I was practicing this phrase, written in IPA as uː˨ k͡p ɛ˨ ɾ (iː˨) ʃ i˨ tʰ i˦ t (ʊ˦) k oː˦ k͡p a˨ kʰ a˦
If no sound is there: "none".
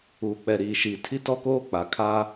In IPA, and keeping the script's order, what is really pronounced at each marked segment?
iː˨, ɔ˦

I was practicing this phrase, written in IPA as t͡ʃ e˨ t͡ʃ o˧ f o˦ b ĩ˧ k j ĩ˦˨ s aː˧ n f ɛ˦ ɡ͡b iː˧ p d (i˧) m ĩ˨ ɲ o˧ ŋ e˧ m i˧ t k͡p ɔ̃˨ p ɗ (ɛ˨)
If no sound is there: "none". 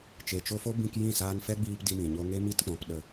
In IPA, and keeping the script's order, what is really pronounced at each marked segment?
i˧, ə˨

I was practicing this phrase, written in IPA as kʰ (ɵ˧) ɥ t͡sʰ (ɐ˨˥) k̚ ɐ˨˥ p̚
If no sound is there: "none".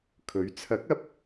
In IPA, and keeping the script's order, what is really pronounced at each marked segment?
ɵ˨˥, ɐ˨˥

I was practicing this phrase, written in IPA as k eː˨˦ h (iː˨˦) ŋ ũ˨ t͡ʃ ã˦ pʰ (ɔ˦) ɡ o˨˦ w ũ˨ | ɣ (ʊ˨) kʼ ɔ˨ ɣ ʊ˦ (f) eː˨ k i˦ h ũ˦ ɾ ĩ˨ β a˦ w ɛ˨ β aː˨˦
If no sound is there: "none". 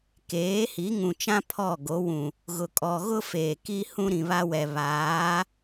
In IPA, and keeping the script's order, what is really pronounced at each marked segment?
i˨˦, ɔ˦˨, ʊ˨, f

